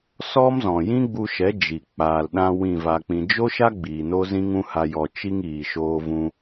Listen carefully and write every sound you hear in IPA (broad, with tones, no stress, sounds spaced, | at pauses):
s ɔ˦ m z ɔ̃˨ j ĩ˦ ɡ͡b u˧ ʃ ɛ˨˦ d͡ʒ i˨ k͡p aː˨ l ɗ ã˧ w ĩ˦˨ v a˧ k͡p ĩ˧ d͡ʒ o˦ ʃ a˦ ɡ͡b iː˨ n o˦ z ĩ˦ ŋ ũ˦ h a˧ j ɔ˨ t͡ʃ i˧ ŋ iː˨ ʃ oː˧ v ũ˧